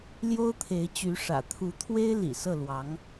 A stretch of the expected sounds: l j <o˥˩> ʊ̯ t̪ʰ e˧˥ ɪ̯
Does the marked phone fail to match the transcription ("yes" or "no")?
yes